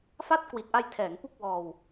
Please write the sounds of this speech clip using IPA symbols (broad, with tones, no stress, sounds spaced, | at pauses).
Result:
f a˥˩ t̚ k w i˨˩ t̚ ʔ a˧ j tʰ ɛː˩˦ ŋ p u˥˩ k̚ w ɔː˧ w